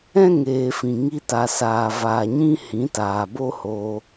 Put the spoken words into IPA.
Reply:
ɛ̃˦ ŋ eː˨ f ĩ˨ ŋ i˧ t a˨ s aː˨ v aː˨ ɲ ĩ˦ h ĩ˨˦ t aː˨ b o˦ h oː˧

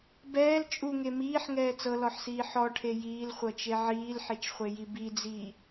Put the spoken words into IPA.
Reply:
b ɛː l t͡ʃʼ u ŋ e m iː ħ ŋ ɛː t͡s ɤ l ɔ ħ s iː ħ ɔ ʈʰ e j iː l χʷ ɤ t͡ʃ e ʕ iː l ħ e t͡ʃ χʷ e j i b i d͡z iː

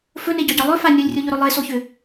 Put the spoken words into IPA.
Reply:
f ɵ n e ɟ ɒ ɟ ɒ lˠ ɵ f a nʲ o lʲ rʲ o ʎ ɵ ɾ ɵ lˠ e s o ç ʏ

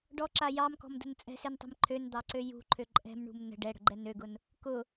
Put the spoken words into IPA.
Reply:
ɖ ɔ ǁ a j ɑ m k ɔ̤ m d ə̤ n t͡sʼ ɛ̤ s e n tˤ ɛ̤ m ǃʰ ø n d̪ ɑ ǀ ø j ṳ ǃʰ ø ǃʼ ɛ̤ m ɳ ṳ m n ə̤ ɖ ɛ ɽ ə̤ ɡ͡ǃ ɛ n ø ɡ ʊ n | k ʊ

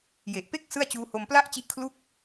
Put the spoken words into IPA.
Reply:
j e˨˩ ʔ p e˥˩ k̚ s ɯ˥˩ a̯ t͡ɕ uː˦˥ h o˧ m p l a˥˩ ʔ t͡ɕ i˦˥ ʔ kʰ l u˥˩ k̚

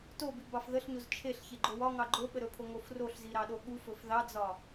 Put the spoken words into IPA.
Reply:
t o b i b ɑ f ð ə ɬ ɲ o z t͡ʃʰ e ɬ ç e ɡ͡ǃ o w ɒ ŋ ɑ ɡ͡ǃ o ɓ ə ɾ ɵ pʰ o ŋ o f r o ɬ z i ɾ ɑ ɗ o ɠ u f ɵ f ð ɑ d͡z ɒ

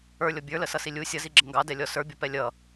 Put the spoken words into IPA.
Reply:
ə˞ lʲ ɔ bʲ ə˞ l ə s ʌ s i lʲ u sʲ ʌ z i ɡ͡ǁ ə ŋ ɡ ɑ d ɛ lʲ ɔ s ə˞ bʲ ʌ p ɛ lʲ ʌ

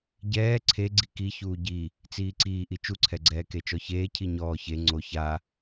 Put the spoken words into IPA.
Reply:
ɟ ɛː ǀʰ e ɡ͡ǀ i k i ç uː ɟ i | t͡s iː ǀ iː ʔ i t͡ʃ u ǀʰ ɛ ɡ͡ǀ ɛː k e t͡ʃ ɔ ç eː cʰ i ɲ ɔː ç e ŋ͡ǀ o ç a

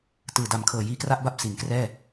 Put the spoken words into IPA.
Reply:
t ɯː˨˩ d a˨˩ m kʰ ɤː˨˩ j iː˧ k r a˥˩ ʔ b a˥˩ p̚ s i˩˦ n k r ɛː˥˩

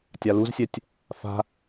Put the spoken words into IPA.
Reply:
tʲ a l u z sʲ ɛ tʲ | f a̤

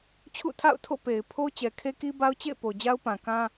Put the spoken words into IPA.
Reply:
t͡ɕʰ ṵ˦˨ tʰ a̰˦˨ ʊ̯ tʰ o̰˦˨ p e˨ ɪ̯ pʰ o˦ t͡ɕ ɛ˨ kʰ e˦ k i˦ b a˦ ʊ̯ t͡ɕ ḛ˦˨ ɪ̯ p o˨ d͡ʑ a˦ ʊ̯ p ã˨ k ã˦

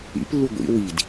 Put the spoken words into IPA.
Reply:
ḭ p lː u ɡʷ ḭ w i d

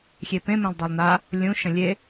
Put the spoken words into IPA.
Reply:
xʲ e p ẽ m ẽ lˠ dˤ a lˠ n a | lʲ ũ ʃ ə̃ lʲ e

